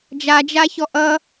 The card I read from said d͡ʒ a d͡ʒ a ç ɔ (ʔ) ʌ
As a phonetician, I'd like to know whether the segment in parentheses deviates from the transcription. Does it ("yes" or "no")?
no